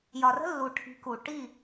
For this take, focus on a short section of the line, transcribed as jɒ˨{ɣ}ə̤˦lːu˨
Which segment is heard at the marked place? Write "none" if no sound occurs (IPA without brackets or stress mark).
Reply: r